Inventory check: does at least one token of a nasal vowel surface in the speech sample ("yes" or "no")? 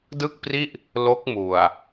no